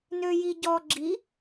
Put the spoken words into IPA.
n ø j i ɟ ɔ ɡ͡ǁ i

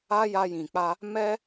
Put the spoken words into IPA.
a˦ j a˧ j ĩ˨ k͡p a˧ | m ɛ˦

